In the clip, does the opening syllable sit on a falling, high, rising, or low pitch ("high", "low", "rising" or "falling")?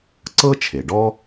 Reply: high